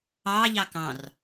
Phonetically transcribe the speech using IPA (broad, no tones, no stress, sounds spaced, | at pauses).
ɑ ʎ ɑ k ɑ̃ r